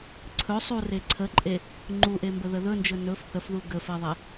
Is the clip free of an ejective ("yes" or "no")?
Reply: no